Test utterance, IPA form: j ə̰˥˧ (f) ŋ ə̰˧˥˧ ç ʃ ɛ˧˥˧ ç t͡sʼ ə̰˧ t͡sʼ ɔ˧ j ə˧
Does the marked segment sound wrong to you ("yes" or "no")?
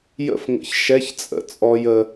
no